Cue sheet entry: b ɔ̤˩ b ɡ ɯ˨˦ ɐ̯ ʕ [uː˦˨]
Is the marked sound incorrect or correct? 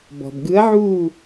correct